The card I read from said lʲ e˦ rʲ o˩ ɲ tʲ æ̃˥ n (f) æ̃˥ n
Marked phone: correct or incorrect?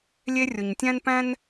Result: incorrect